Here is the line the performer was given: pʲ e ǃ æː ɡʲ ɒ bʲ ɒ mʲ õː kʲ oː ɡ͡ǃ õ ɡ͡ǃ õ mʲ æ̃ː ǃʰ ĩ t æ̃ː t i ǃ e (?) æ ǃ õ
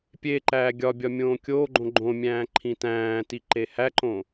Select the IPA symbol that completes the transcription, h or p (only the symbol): h